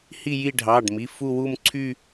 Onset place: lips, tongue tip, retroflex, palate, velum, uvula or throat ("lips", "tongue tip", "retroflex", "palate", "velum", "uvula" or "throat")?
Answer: throat